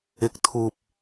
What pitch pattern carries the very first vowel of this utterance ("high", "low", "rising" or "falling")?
low